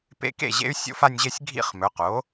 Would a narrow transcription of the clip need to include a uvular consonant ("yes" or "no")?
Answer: yes